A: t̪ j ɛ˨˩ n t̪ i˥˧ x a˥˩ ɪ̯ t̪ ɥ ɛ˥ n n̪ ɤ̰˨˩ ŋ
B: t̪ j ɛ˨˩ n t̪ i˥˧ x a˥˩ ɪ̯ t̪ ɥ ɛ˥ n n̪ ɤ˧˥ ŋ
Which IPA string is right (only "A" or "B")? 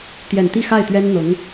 B